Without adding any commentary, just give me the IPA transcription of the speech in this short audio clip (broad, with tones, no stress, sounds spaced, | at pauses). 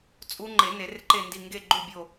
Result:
t͡sʼ u˦˥ ŋ͡ǃ e˨˩˦ n e˨˩˦ r ǃ e˦˨ n d i˦˨ ŋ ɡ e˦˨ ɡ͡ǃ u˦˨ bʲ o˦˨